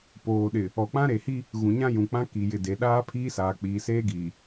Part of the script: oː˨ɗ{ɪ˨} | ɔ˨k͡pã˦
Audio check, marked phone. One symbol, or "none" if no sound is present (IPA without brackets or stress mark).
ɪ˨